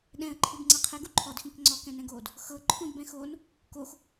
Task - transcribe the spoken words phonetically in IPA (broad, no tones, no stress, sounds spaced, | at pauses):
ɗ ɛ̃ ə̯ ǃʰ ɯ b ŋ͡ǀ ɤ qʰ ɛ ɡ u ǃʰ ɔ d x ĩ k ŋ͡ǀ ɔ k ɛ̃ n ɛ̃ ɡ oː d | x ɤ ǃʰ ũ d b ɛ̃ x oː n | k o x